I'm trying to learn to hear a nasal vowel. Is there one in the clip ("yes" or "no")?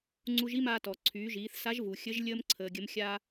no